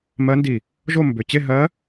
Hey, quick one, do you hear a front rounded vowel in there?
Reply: yes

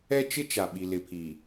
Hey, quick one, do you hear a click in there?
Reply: no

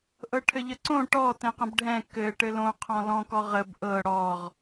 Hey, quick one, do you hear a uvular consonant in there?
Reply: yes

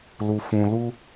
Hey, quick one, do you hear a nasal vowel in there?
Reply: yes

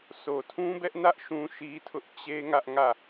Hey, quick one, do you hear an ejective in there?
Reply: no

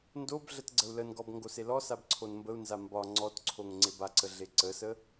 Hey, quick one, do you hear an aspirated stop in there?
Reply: yes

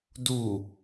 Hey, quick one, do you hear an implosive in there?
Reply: no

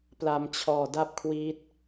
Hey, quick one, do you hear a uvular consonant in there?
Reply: no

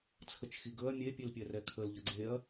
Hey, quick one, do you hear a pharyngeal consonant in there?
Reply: no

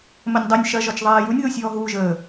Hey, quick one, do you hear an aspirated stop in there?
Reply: no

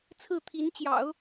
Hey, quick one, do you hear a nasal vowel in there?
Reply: no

